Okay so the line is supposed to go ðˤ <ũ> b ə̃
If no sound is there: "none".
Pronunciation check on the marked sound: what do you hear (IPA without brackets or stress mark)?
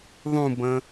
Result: ũ